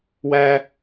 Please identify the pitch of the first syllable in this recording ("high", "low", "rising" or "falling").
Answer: high